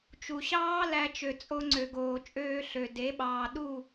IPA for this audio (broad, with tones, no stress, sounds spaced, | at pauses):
t͡ʃ u˨ ɕ ɑː˦ l æ˦ t͡ʃ ø˧ t͡sʼ o˦ ŋ͡ǀ ø˨ ɡ oː˨ t͡ʃʼ øː˧ ɬ ø˨ d e˨˦ ɓ ɑː˨ ɗ u˦˨